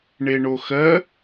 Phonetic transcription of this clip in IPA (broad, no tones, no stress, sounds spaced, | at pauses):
ɳ e ɳ o x ɜ